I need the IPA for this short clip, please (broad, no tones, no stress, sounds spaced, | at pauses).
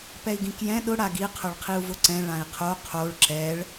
p ɛ i̯ ɡ ĩ k j ɛ̃ ɗ ʊ ɽ a ɡ i qʰ ʊ ɭ qʰ i u̯ v ʊ ǀ ɛ̃ ɭ ã i̯ qʰ o qʰ o ɭ ǁ ɛ ɭ